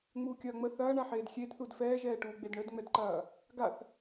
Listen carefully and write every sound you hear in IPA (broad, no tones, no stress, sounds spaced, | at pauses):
ŋ͡m uː kʲ ɐː ŋ͡m ə θ ɐː ɳ a ħ eː d xʲ e d θ u d f ɛː ʒ ɛː ʈ uː ɡ͡b e d ɳ ə d ŋ͡m ɛ d ǃ ɐː | ɡ a θ